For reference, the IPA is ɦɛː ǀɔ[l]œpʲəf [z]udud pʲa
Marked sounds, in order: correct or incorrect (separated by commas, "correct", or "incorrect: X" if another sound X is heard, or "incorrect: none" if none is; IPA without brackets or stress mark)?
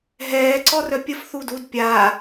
incorrect: r, incorrect: θ